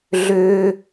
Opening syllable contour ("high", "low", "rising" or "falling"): high